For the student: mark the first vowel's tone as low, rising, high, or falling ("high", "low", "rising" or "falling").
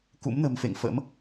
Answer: rising